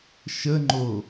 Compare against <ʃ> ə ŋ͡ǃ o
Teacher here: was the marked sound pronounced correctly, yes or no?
yes